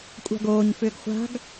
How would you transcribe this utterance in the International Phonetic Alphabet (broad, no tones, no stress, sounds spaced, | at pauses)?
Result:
kʷʼ a̤ ɡ oː ɲ f ʏː ɡ χʷ a̤ ɡ